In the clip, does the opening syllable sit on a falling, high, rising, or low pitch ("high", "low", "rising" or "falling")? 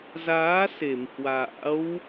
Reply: rising